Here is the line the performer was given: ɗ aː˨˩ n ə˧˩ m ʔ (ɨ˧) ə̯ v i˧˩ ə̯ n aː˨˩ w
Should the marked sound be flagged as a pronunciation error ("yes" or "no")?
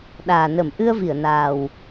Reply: no